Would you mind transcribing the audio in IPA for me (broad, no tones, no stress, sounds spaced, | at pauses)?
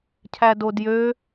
cʰ æ d o d j ø